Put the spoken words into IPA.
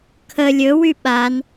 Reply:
kʰ ə lʲ ɵ w y ɓ a n

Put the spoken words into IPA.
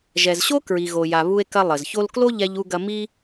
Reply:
ʒ ɛ˩ z ɕ o˥ k ɹ i˩ ɣ o˩ j a˩ β u˥ e̯ k ɐ˥ lˠ ɘ˩ z ç o˥ l k l o˥ ʎ ɛ˥ ʎ u˥ ɡ ɐ˥ m i˥

